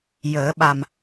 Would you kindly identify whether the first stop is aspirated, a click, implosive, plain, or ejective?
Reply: implosive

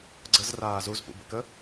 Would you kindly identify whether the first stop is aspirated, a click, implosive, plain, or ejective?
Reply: click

